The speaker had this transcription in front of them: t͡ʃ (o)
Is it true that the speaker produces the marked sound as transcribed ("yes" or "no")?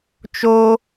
yes